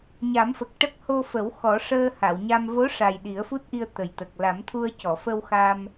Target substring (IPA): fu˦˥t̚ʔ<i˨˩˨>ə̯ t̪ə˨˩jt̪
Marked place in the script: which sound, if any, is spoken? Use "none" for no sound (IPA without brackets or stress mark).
i˧